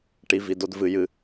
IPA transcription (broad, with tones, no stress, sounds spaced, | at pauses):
ʈ i˨ v i˨ d o˧ d v ɨ˨ j ɨ˨